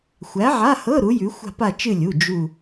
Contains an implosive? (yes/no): no